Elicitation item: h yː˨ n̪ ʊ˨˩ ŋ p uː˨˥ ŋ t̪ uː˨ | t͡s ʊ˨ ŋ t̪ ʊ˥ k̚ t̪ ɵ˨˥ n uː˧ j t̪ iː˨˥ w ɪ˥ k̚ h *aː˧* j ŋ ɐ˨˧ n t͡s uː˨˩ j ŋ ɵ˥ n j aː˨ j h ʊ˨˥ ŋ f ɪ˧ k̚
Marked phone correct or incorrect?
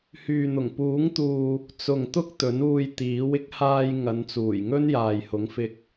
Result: correct